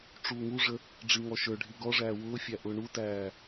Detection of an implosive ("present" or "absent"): absent